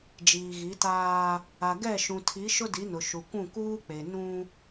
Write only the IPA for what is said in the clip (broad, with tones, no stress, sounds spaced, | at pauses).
d͡ʒ iː˨ ɣ i˨˦ t aː˦ | a˨ ɡ ɛ˦˨ ʃ ũ˨ tʰ i˨˦ ʃ ʊ˦ d i˨˦ n ʊ˨ ʃ u˨ kʷ ũ˦˨ k uː˦ k͡p e˨ n ũ˦